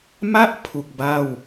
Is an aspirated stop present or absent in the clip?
present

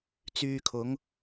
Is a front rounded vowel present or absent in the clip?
present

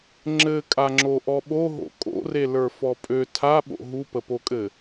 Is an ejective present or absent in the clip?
present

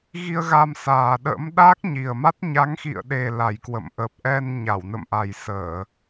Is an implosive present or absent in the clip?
present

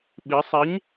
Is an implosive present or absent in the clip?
present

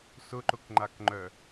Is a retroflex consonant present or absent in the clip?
absent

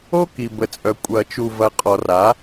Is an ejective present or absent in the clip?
present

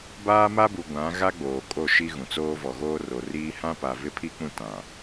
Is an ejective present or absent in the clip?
present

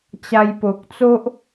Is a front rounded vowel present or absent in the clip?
absent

